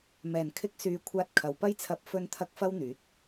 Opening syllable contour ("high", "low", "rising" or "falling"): low